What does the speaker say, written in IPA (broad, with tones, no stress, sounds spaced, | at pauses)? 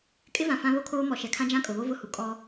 kʼ ɪ˦ v ã˨ f ã˦ β o˦ kʰ oː˦ m ɔ˨ ʃ ɛ˨ kʰ ã˦ d͡ʒ ã˦ kʼ ʊ˨ β o˦ v ʊ˦ h u˨ kʼ ɔ˦